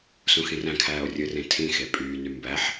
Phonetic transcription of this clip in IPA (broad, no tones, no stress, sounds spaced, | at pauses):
s ũ x ĩ r æ̃ kʰ æː o̯ rʲ ɯ r ẽ tʰ ĩ x e pʼ yː n y m b æ ħ